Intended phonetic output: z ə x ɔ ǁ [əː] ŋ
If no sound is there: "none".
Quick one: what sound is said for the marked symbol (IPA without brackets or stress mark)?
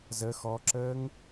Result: əː